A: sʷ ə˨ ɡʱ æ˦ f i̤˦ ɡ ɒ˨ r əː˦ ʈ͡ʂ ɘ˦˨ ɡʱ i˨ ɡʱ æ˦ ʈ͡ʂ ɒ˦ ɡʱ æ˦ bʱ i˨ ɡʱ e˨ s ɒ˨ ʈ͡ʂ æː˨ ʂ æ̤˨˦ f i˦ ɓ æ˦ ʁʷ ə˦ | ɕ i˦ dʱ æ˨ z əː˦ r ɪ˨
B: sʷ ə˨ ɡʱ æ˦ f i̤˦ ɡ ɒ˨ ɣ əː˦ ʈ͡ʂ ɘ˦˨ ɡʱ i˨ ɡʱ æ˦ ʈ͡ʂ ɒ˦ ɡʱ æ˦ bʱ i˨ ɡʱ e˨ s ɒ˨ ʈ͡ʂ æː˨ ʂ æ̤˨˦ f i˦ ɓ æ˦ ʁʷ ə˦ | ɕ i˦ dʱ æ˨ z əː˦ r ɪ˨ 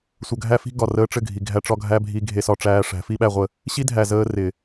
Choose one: A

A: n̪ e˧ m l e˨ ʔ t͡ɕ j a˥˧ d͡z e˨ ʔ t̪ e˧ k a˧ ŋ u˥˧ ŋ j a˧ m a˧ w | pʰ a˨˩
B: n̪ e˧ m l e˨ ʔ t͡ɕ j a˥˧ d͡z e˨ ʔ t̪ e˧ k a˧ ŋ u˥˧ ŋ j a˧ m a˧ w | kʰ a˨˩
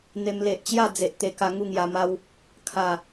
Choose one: B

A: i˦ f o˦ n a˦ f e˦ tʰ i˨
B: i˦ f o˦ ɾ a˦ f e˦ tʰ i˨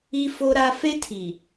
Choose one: B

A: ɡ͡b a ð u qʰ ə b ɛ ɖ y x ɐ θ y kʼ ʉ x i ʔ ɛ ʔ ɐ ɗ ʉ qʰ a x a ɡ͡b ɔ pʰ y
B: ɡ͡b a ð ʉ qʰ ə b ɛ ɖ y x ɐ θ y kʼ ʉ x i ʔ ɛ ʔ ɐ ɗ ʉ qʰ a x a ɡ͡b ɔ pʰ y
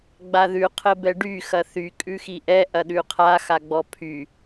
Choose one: B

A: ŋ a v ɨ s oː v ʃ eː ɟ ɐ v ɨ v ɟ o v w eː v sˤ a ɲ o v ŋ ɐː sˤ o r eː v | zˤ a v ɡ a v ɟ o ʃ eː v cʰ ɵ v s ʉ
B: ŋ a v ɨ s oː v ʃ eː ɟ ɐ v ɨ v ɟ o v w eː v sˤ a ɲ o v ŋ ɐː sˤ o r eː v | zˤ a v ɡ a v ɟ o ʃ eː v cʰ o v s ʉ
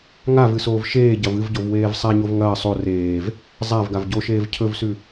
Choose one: A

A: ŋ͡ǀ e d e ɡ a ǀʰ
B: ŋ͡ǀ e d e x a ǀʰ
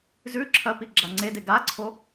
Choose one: A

